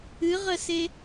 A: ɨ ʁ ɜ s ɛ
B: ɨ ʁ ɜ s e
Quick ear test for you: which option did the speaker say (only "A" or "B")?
B